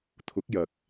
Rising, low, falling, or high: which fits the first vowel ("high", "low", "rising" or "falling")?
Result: rising